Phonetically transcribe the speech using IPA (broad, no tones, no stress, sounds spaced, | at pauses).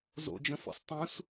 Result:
z o̰ d͡ʒ ə̃ f ɔ̰ s tˤ ũ s